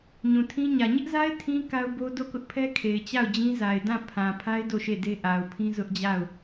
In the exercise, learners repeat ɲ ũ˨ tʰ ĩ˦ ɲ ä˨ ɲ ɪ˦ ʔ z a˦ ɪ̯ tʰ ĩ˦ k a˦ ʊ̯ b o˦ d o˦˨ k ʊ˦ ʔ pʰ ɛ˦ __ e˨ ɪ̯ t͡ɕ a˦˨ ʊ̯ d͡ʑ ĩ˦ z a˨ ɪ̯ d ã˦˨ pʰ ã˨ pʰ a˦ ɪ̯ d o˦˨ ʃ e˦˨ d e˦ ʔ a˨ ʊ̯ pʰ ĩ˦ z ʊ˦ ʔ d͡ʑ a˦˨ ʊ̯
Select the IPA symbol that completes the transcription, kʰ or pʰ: kʰ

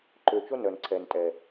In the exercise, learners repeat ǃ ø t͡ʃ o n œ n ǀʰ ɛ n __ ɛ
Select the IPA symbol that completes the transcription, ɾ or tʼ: tʼ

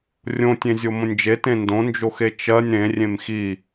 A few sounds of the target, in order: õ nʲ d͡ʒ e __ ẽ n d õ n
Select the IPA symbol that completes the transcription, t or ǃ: t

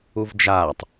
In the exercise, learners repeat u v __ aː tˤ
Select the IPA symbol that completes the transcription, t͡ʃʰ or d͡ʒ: d͡ʒ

